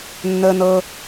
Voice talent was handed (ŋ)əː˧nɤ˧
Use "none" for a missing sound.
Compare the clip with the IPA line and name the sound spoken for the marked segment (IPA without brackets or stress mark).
nː